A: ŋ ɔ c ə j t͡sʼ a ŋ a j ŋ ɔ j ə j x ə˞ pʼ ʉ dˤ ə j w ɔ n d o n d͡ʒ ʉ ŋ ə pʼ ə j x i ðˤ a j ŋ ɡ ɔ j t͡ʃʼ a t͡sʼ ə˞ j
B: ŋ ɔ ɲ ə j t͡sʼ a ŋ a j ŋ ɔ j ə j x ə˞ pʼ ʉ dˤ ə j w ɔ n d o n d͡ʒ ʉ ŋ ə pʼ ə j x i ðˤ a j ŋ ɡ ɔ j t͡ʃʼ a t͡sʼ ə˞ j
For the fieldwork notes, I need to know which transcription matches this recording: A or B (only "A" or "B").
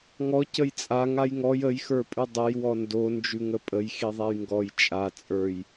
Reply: A